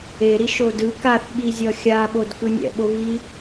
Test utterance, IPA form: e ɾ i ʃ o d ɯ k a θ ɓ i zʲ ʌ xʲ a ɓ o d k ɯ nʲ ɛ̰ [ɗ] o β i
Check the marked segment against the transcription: incorrect: ɓ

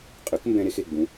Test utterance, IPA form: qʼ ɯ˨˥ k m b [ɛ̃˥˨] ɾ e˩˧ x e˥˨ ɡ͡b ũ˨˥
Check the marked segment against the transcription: incorrect: ɛ̃˧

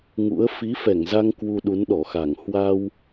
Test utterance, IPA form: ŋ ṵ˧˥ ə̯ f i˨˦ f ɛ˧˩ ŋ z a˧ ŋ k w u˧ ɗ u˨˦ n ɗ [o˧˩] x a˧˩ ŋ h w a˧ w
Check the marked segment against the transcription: incorrect: ɔ˧˩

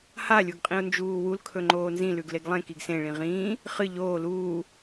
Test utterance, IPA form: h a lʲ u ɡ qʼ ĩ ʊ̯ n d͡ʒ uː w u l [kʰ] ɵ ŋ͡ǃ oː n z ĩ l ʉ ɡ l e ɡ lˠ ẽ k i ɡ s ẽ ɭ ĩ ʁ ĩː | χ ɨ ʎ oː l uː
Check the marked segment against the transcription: correct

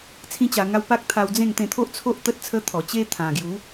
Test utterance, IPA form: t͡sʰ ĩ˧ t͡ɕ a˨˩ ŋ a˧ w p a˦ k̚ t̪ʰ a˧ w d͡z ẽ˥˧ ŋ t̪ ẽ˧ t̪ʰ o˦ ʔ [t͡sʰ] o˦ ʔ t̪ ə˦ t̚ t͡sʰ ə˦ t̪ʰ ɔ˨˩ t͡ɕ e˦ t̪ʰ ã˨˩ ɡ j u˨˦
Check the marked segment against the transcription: correct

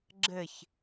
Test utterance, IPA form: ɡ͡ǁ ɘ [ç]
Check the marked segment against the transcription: correct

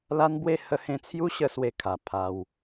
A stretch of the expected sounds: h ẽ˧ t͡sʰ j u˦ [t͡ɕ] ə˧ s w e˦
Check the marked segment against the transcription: incorrect: ɕ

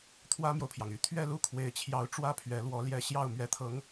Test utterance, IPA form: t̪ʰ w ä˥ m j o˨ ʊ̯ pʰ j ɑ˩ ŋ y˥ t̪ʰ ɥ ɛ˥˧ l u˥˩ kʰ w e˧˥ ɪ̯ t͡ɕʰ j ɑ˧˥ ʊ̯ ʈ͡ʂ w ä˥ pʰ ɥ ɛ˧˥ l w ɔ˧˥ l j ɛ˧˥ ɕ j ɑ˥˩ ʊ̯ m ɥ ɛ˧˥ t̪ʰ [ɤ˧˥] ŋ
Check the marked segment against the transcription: correct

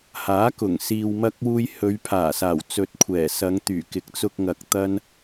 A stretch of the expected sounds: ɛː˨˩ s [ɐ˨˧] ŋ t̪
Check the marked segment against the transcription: correct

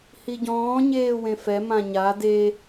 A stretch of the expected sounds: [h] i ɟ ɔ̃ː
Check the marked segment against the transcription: correct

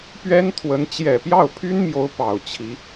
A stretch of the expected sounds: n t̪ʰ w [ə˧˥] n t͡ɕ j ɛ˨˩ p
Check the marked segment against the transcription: correct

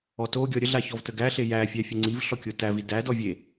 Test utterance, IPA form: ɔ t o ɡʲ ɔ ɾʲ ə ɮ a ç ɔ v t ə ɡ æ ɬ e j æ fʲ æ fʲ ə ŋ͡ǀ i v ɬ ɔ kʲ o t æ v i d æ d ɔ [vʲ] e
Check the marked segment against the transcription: correct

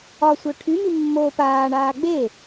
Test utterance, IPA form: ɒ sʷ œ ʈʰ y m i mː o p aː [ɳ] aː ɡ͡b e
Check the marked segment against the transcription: correct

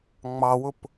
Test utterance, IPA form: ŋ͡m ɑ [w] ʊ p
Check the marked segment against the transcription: correct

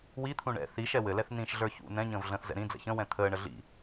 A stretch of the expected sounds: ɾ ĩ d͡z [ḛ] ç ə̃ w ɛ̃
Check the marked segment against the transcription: incorrect: ɛ̰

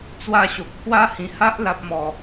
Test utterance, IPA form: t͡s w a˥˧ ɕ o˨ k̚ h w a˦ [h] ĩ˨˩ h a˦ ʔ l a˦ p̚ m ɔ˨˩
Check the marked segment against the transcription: correct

